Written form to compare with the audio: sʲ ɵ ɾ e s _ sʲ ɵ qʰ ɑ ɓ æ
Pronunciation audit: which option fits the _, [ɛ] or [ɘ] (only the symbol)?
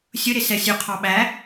ɛ